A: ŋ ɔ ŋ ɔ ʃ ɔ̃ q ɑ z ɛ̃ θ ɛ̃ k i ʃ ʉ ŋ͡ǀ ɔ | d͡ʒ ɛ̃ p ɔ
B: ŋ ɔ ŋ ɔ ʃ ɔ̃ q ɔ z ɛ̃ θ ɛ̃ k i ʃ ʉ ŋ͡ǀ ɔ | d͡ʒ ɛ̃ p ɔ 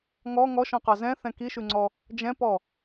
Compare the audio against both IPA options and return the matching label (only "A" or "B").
A